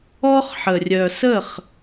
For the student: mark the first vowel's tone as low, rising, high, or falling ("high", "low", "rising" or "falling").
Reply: high